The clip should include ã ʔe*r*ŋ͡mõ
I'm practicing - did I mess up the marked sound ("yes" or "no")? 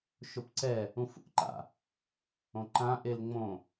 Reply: yes